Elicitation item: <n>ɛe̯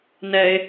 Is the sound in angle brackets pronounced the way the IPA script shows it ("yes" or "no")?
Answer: yes